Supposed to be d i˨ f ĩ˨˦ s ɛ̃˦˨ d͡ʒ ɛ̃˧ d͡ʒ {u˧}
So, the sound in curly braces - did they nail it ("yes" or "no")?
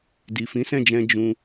no